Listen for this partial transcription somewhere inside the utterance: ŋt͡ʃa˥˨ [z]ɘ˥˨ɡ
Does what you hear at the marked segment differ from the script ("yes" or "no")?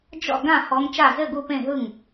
no